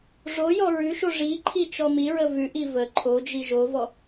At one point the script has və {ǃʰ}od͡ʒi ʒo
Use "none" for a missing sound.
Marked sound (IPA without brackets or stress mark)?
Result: ǃʰ